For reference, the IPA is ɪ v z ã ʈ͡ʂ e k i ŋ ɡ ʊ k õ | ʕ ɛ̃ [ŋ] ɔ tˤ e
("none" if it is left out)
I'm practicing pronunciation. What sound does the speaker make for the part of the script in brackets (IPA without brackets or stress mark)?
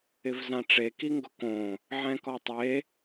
k